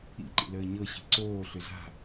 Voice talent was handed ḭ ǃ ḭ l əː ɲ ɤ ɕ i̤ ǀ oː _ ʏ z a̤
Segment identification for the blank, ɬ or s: ɬ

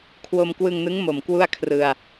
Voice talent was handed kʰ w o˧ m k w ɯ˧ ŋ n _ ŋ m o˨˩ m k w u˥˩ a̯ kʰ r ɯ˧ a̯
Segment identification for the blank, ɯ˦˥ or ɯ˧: ɯ˦˥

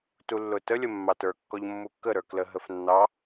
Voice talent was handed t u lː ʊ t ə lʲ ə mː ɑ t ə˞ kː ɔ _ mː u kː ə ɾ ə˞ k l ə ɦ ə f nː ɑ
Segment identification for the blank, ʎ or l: ʎ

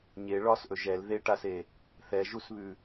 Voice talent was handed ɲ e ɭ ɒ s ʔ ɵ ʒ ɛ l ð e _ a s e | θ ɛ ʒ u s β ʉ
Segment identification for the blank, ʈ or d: ʈ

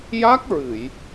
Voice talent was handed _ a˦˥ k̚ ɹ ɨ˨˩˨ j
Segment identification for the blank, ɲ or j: j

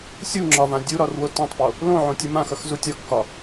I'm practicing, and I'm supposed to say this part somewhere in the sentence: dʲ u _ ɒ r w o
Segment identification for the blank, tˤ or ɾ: ɾ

